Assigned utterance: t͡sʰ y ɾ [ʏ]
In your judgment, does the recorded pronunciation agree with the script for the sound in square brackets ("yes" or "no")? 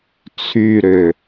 yes